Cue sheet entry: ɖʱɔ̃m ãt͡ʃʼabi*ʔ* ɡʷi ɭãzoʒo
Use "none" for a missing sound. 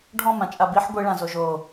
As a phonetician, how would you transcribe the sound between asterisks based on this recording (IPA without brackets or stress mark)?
ħ